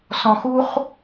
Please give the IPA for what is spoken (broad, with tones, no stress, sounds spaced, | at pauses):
s ɔ̃˨ x u˦ χ